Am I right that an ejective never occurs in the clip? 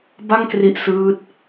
yes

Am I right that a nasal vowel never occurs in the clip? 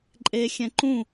no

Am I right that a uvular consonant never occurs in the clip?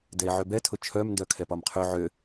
no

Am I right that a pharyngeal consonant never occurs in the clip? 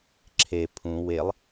yes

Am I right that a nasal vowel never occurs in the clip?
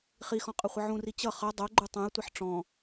no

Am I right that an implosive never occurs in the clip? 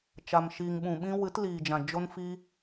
no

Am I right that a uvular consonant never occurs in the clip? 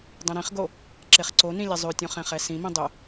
no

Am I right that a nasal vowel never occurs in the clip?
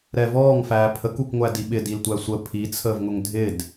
yes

